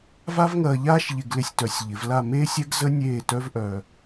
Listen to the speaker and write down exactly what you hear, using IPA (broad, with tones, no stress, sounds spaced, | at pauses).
v a˥ v ŋ ɐː˧ ʎ aː˥ ʃ ʎ ɪ˧ ɡ l ɪ˧ sʲ t œ˩˧ sʲ ʎ ɪ˩˧ v l a˥˧ m eː˥ sʲ ɛ˥ ɡ z ə˥ nʲ eː˥˧ t œ˥ v ʔ œː˧